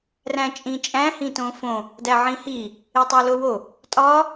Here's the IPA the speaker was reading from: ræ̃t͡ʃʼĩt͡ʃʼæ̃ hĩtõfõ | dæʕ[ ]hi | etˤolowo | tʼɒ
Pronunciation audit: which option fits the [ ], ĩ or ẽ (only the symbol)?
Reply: ĩ